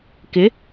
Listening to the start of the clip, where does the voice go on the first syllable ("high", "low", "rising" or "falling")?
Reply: rising